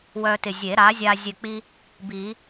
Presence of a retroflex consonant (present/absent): absent